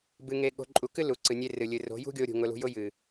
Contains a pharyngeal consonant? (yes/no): no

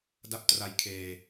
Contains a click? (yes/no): no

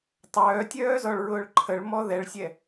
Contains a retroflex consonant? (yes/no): yes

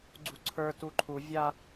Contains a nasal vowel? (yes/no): no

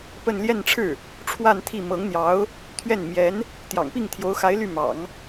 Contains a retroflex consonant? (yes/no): yes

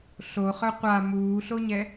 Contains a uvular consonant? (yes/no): yes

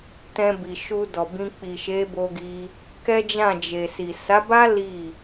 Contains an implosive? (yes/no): no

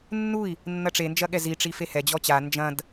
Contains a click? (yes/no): no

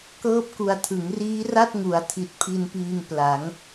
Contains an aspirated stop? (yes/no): yes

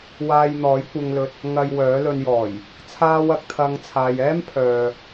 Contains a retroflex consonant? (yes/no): no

